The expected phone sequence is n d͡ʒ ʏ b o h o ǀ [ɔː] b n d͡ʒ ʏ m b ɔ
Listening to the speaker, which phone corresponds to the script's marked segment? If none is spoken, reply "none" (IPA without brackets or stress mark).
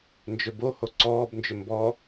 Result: ɔː